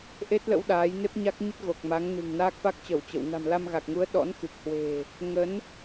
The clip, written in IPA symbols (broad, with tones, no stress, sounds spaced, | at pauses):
ʔ e˦˥ t̚ l ə̰˧˥ w ɗ aː˨˦ j n e˦˥ p̚ ɲ a˦˥ k̚ ɲ ə˦˥ t̚ ɣ o˨˩ k̚ m a˨˦ ŋ n ɨ̤˨˩ ŋ n aː˦˥ k̚ f a˦˥ k̚ t͡ɕ ə˧˩ w t͡ɕ ə̰˧˨ w n a̤˨˩ m l a˧ m ɣ a˨˩ k̚ ŋ u˨˦ ə̯ ɗ ɔ̰˧˥ n x ɨ˨˩ k̚ h w e̤˨˩ | ŋ ə˨˦ n